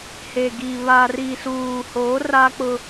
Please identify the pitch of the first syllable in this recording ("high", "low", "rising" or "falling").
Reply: low